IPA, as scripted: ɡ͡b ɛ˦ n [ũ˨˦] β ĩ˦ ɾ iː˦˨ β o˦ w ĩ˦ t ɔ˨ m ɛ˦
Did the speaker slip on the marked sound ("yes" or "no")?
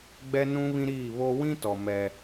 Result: yes